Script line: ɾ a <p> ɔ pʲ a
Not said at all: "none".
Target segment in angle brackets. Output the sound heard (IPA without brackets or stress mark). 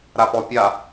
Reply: p